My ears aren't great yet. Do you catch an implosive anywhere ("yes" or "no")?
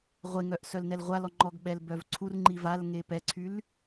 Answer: yes